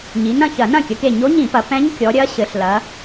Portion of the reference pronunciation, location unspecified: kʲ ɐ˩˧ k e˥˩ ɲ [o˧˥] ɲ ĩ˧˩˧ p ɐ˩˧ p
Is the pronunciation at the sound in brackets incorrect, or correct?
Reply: correct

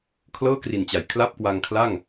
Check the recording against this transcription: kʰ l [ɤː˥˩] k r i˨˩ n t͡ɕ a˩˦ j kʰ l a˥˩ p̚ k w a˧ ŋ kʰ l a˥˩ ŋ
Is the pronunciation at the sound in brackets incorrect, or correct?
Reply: correct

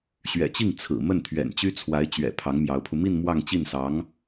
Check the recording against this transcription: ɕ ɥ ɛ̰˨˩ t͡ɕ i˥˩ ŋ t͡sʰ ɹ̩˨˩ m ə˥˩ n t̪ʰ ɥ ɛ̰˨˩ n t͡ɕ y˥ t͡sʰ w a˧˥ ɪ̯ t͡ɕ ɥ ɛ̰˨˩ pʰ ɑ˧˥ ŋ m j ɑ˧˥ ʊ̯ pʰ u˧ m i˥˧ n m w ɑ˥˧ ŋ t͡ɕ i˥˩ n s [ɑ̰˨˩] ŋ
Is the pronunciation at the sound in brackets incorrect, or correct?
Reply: incorrect: ɑ˧˥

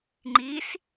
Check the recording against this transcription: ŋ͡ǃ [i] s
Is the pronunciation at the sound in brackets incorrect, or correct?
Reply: correct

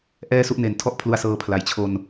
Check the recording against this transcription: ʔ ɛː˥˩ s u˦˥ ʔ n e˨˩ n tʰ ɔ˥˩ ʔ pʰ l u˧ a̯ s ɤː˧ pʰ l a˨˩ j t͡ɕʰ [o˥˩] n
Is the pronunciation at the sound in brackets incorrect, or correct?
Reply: incorrect: o˧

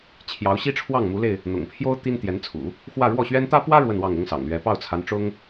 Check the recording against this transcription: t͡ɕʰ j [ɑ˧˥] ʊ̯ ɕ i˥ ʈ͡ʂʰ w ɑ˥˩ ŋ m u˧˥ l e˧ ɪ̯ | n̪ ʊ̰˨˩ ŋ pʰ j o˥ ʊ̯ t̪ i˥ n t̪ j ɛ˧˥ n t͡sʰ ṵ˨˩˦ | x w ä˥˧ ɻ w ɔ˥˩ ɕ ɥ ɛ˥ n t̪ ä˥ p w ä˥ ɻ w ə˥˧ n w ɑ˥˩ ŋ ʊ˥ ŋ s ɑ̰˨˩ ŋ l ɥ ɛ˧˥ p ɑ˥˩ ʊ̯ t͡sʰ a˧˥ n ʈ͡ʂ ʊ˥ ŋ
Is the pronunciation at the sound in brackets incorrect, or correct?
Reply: correct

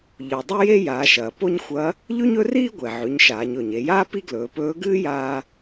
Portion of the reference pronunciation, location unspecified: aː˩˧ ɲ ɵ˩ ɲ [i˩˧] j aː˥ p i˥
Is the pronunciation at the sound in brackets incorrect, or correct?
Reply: incorrect: e˩˧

